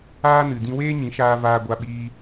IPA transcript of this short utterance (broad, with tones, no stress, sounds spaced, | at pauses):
aː˦ n ɨ˨ d ĩ˧ w eː˦ ɲ ĩ˨˦ ʃ aː˧ v aː˧ ɡʷ a˧ ɓ iː˧